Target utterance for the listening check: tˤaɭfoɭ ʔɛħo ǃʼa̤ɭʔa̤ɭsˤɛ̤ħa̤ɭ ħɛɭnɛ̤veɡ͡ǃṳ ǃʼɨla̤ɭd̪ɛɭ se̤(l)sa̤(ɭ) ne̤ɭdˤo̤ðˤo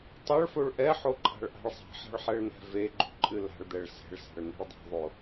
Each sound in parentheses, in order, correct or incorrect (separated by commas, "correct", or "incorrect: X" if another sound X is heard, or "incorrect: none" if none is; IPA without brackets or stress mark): incorrect: ɭ, correct